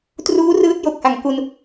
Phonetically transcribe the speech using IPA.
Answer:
t r uː˦˥ r ɯː˦˥ t̚ j o˨˩ k̚ h a˨˩ ŋ k u˧ n

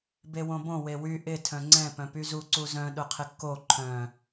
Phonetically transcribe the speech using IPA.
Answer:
b e w õ b õ w e w y ʔ ɪ tʰ œ̃ ŋ͡ǀ ɛ̃ p œ̃ p y z u ǀ u z œ̃ ɗ ʊ qʰ ɪ kː o ǃʰ œ̃

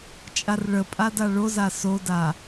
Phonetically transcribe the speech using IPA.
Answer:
t͡ʃʼ a r ɭ ə pʼ a d a ɭ o z a s o d a

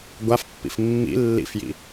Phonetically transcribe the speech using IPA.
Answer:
ɡʷ a f pː ḭ f mː ḭ lː ḭ f j ḭ

